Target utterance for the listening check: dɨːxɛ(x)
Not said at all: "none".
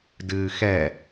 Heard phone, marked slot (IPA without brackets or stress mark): none